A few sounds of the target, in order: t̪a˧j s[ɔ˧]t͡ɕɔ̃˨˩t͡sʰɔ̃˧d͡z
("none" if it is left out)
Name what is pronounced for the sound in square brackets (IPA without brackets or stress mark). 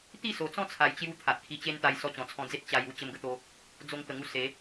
ɔ˧